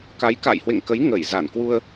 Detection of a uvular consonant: absent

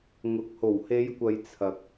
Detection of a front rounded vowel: absent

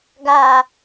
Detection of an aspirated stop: absent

